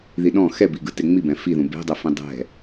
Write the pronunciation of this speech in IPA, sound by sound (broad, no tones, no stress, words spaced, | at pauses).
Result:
ðiɗɔ̃ xɛbi ɡɯteŋ͡mibɛ̃ fiðũ be̤dˤøfĩ dˤɛ̤